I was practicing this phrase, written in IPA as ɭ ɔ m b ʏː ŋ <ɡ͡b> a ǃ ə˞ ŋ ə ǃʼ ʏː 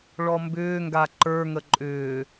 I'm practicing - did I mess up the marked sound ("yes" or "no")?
yes